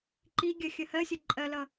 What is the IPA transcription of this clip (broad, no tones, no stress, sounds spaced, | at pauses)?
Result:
ǃ i ɡʲ ɜ xʲ ə h ɜ sʲ ʌ ǃʼ ɜ l ʌ